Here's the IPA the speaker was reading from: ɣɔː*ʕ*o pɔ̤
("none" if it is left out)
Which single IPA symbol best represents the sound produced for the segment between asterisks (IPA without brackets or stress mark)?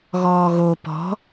ɣ